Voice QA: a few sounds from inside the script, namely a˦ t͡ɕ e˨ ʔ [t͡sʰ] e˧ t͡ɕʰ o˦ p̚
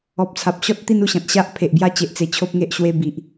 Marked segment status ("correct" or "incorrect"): incorrect